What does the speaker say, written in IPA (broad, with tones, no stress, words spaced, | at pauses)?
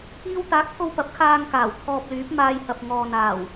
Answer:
iː˥w t̪aː˨˥k̚t̪ʰo˧w pɐ˨˥p̚kʰaː˧ŋ kaː˨˩wt̪ʰɔː˧p̚lyː˨˥p̚ maː˧jhɐ˨p̚ ŋɔː˨n̪aː˨˩w